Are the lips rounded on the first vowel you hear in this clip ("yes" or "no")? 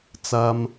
no